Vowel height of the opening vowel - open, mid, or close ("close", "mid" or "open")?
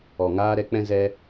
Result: mid